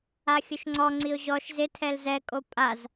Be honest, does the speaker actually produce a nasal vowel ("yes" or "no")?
no